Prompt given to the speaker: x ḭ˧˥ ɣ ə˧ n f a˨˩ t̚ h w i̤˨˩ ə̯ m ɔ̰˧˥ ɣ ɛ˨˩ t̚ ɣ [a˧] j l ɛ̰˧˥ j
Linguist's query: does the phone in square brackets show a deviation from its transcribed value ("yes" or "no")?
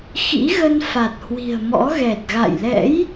yes